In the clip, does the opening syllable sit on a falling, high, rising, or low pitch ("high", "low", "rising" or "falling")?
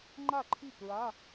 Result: falling